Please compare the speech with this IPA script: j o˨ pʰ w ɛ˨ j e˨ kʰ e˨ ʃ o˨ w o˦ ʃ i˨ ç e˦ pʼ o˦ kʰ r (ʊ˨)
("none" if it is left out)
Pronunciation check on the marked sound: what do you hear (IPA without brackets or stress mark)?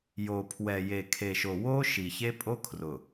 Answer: ʊ˨